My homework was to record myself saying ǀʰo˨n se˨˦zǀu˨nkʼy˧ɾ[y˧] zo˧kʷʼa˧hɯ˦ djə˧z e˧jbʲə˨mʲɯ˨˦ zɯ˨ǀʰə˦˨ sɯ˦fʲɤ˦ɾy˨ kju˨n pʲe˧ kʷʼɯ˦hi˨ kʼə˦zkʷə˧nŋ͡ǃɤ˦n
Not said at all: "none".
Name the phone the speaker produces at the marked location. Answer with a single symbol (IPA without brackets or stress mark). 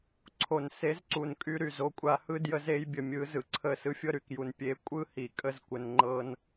y˨